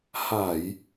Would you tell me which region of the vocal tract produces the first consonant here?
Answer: throat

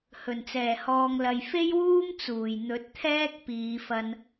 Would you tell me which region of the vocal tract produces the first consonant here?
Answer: throat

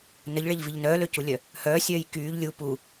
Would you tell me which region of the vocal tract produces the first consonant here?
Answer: tongue tip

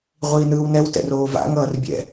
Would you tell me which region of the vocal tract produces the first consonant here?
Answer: uvula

